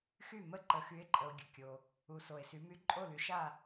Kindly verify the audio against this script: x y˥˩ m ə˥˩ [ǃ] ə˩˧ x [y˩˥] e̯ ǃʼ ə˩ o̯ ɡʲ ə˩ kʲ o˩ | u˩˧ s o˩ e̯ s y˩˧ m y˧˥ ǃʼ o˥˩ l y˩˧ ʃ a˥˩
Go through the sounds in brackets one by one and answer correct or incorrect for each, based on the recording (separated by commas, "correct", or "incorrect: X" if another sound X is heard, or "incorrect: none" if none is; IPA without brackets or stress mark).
correct, correct